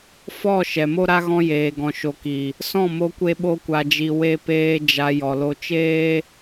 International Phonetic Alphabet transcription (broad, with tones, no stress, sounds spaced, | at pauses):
f ɔ˦˨ ʃ ɛ˨ m o˦ ɾ a˦ ɣ ɔ̃˧ j eː˨ ɡ ɔ̃˨ ʃ o˨ k i˨ | s ɔ̃˦˨ m o˧ kʷ e˧ ɓ o˧ kʷ a˨ d͡ʒ i˨ w e˧ p eː˧ d͡ʒ a˨ j ɔ˨ l o˧ t͡ʃ eː˦